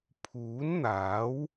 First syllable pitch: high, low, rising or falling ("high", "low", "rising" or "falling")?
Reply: rising